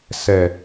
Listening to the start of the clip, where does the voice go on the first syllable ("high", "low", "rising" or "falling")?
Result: low